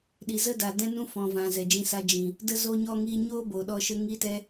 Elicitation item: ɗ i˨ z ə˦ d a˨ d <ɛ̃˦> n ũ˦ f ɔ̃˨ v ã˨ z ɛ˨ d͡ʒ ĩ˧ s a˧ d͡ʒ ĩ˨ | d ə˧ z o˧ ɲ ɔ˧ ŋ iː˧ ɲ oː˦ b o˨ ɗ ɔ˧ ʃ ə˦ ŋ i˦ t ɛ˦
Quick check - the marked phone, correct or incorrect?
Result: correct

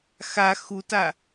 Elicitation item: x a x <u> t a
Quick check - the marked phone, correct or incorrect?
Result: correct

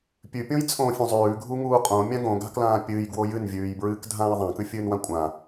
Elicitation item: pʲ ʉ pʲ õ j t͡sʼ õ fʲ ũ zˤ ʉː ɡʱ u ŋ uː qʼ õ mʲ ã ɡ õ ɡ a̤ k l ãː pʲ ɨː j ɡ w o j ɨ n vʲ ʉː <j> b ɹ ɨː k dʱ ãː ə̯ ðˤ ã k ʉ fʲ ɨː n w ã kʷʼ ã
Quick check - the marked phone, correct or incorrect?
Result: correct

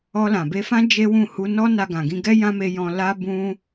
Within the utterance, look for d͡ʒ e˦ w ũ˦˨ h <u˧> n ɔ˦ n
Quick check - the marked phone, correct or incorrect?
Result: correct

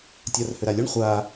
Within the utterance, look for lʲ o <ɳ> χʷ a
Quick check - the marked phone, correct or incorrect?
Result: correct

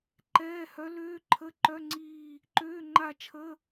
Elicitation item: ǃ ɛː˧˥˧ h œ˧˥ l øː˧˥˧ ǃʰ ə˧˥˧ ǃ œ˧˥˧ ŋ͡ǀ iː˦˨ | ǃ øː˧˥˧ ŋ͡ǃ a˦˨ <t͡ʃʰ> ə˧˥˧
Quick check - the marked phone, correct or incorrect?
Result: correct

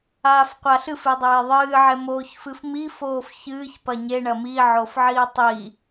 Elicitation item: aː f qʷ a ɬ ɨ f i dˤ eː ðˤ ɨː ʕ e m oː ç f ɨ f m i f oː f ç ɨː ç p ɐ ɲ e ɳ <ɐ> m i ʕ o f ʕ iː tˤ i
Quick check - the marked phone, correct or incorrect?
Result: correct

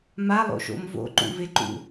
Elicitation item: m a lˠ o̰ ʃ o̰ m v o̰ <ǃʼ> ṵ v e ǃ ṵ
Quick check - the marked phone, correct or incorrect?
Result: incorrect: ǃ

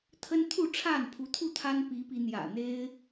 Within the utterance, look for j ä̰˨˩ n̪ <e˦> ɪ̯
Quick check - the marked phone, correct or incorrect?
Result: correct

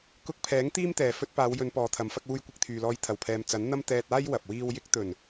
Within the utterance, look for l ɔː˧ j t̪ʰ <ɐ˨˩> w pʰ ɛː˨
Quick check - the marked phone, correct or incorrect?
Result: correct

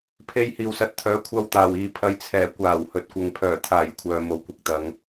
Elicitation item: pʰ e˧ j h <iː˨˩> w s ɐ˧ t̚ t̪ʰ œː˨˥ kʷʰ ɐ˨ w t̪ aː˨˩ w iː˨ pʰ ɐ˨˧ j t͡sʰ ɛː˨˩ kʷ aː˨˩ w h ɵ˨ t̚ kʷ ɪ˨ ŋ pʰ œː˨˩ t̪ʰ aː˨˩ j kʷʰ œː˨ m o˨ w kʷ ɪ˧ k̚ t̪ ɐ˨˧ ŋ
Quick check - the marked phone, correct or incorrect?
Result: incorrect: iː˨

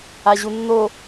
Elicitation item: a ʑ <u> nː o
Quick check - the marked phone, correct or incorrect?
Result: correct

